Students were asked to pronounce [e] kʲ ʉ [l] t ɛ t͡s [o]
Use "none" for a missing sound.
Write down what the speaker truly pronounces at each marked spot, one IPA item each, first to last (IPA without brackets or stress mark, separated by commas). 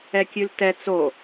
ɛ, l, o